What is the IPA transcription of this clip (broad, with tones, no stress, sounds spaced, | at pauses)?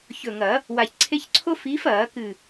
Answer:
ç ɵ˧˩ ŋ ɐ˨˩˦ | w a˧˩ ç ǀʰ e˥ ç ǀʰ o˥ f iː˨˦ f ɐː˨˩˦ k ɨ˧˩